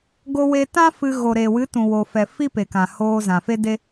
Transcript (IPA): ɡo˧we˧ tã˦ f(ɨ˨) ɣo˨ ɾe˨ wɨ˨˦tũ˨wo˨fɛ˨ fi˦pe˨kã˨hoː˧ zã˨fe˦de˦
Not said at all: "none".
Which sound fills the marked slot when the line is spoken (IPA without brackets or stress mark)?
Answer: ɨ˧